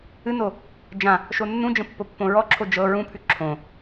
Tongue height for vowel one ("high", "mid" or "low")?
high